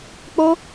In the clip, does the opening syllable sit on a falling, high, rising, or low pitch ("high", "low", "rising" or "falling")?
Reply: high